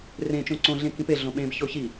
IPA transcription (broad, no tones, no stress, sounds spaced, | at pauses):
r ẽ t͡ʃ õ ǀ õ ɮ ẽ k ĩ p e ɮ õ ɓ ẽ b ç o ç i